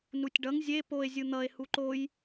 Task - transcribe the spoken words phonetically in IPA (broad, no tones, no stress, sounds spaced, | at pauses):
n u tʲ ɖ ʌ ŋ zʲ e p o e̯ zʲ ɯ n̪ ʌ e̯ h u ǃ o j